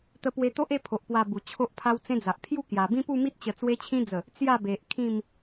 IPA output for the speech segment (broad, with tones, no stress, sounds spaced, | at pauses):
t̪ ə˧ p w e˧ t̪ o˦ ʔ e˥˧ pʰ o˨ ʔ p w a˧ b u˨˩ t͡ɕʰ o˦ ʔ pʰ a˦ w t͡s ẽ˦ d͡z a˨ ʔ pʰ j u˥˧ k j a˨˩ b ĩ˦ p u˥˧ m i˦ t̚ t͡ɕ ə˨˩ t͡s w e˧ t͡ɕʰ ĩ˧ d͡z ə˨˩ | t͡s j a˥˧ b e˨ ʔ kʰ ĩ˥˧ m